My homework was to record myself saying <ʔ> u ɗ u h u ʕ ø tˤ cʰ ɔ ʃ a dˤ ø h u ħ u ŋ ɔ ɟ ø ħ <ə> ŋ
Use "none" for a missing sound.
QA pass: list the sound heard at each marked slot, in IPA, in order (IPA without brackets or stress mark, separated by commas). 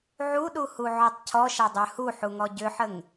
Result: ʕ, ə